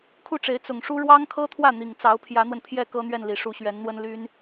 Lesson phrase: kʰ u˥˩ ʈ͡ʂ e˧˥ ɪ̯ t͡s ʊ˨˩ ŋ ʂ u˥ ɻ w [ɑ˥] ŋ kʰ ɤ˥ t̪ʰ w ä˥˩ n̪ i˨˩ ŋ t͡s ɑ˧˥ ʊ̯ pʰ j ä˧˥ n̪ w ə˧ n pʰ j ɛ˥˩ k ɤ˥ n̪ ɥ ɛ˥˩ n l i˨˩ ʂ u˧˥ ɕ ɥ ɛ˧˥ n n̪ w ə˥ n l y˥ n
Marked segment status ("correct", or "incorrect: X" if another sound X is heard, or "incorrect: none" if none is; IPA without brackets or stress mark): correct